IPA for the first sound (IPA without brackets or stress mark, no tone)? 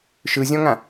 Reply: ʃ